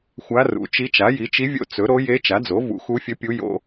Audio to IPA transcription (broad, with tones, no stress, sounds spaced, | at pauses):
xʷ a˧˥ r ṵ˩˥ t͡ʃ i˧˥ t͡ʃ a˩˥ j i˩˥ t͡ʃ i˧˥ vʲ o̰˧˥ t͡s ɵ˩˥ ɾ o˧˥ j e˧˥ t͡ʃ a˩˥ d͡z o˩˥ v ṵ˩˥ x u˧˥ fʲ ɵ˧˥ pʲ u˧˥ j o̰˧˥